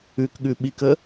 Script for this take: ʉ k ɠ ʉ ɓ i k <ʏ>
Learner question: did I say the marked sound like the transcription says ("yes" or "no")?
no